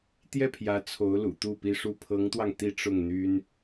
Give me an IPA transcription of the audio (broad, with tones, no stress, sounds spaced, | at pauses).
t̪ j ɛ˥˩ pʰ j ä˧˥ t͡sʰ o˧˥ ʊ̯ l ṵ˨˩ t̪ u˥˩ p i˥ ʂ u˥˩ pʰ ɤ˧˥ ŋ t̪ w ɑ˧ ŋ t̪ i˥˧ ʈ͡ʂ ʊ˥˩ ŋ n̪ y˥ n